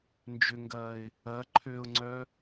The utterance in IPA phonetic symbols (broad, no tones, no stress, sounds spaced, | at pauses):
n d͡ʒ ʏ ŋ ɡ ɐː ɪ̯ | ɐ ǃʰ ø ʊ̯ ŋ͡ǀ œ